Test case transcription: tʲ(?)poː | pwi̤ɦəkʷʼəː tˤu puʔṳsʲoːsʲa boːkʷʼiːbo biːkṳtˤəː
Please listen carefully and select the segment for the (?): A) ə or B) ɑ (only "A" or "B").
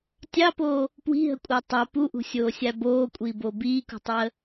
B